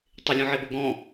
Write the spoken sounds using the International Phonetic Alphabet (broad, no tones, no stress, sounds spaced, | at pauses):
tˤ ɪ lʲ ɔ̃ ʕ e b o ɡ ɔ̃